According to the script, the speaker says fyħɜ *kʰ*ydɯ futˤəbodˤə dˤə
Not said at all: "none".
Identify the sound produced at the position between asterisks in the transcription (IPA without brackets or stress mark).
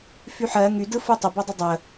ŋ